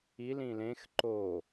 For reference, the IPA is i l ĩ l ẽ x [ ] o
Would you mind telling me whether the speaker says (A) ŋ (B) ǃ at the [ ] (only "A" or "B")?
B